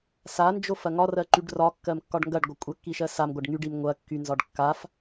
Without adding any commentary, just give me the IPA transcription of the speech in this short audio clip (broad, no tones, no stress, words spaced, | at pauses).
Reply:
sand͡ʒof ɐŋɒrɜǃyɖ rɒkːɜm kːɒɖŋɡɐɖ ɡʷɐkʷʼɐkːi ʃɜsam ɡʷɐɖŋyɖim ŋʷɐ kːynzɒɖ kːaf